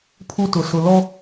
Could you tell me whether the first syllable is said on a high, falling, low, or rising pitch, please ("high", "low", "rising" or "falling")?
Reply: high